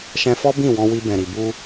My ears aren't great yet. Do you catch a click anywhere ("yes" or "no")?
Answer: no